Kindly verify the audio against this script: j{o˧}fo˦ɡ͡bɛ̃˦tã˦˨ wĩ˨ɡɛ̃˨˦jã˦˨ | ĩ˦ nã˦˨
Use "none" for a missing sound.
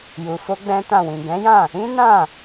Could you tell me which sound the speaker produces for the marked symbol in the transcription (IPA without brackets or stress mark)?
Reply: u˧